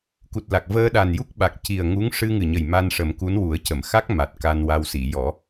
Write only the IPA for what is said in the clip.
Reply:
k u˨˩ t̚ l a˨˩ k̚ v əː˧ ɗ a˨˩ n j u˦˥ k̚ ɓ a˨˩ k̚ c i˨˩ ə̯ ŋ u˧˥ ŋ ʂ ɨ˧ ŋ ɨ˨˩ ɲ ə˨˩ j m a˧ n ʂ ə˨˩˦ m k u˧˥ n w u˨˩˦ ə̯ c ə˨˩˨ m x a˦˥ k̚ m a˨˩ t̚ k a˧ n w a˧ w s i˨˩˨ j ɔ˨˩˦

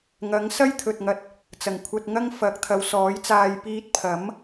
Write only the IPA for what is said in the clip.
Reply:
ŋ ɐ˨˥ ŋ s ɐ˥ j t̪ʰ ɵ˨ t̚ ŋ ɐ˧ t̚ | t͡s ɐ˨˩ ŋ kʷʰ ɐ˧ t̚ ŋ ɐ˥ ŋ f ɐ˨˥ k̚ t̪ʰ ɐ˨˧ w s ɔː˨˥ j t͡s aː˧ j p iː˧ t̚ pʰ ɐ˨˥ m

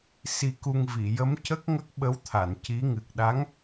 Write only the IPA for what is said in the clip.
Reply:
s i˧ k u˧ ŋ v i˨˩˨ j ə˧˥ m c ə˦˥ k̚ ŋ ə˦˥ k̚ ɓ ə˧˥ w t̪ʰ a˨˩˨ n c i˧˥ ŋ ɨ˨˩ k̚ ɗ a˧˥ ŋ

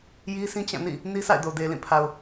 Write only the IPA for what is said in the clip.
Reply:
j i˦ sʰ ĩ˦ t͡ɕ ã˦˨ n ḭ˦˨ | n i˦ sʰ a̰˦˨ ɪ̯ d o˨ d e˨ l ĩ˦˨ pʰ a˨ ʊ̯

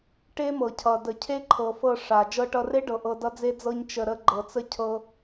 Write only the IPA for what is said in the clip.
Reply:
ʈ e˦ m ɤ˨ cʰ ʌ˨ d ə˨ cʰ e˦ ǃʰ ɤ˨ f ɤ˧ ʂ a˨ d͡ʒ ɤ˧ ʈ ʌ˧ r e˦ ɖ ɤ˨ ʔ ɤ˧ d ʌ˦ d͡z e˦ d͡z ɤ˦ ɲ t͡ʃ ə˧ ɾ ə˦ ɡ͡ǃ ɤ˨ t͡s ə˦ cʰ ɤ˧

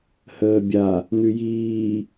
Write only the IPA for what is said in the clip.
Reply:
h əː bʲ a | n ʉ j iː

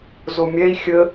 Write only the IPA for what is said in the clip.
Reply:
z o mʲ ɛ i̯ xʲ ə

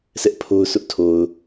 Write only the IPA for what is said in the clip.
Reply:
sʰ ɛ˦ ʔ pʰ o˦ ʊ̯ s ʊ˦ ʔ tʰ o˨ ʊ̯

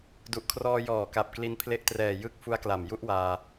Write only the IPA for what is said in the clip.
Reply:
d u˨˩ ʔ kʰ r ɔː˧ j ɔː˨˩ k a˨˩ p̚ k l i˧ n pʰ l e˦˥ ʔ t r ɛː˨˩ j ɯ˦˥ k̚ f u˦˥ a̯ k l a˨˩ m j u˦˥ ʔ w aː˧

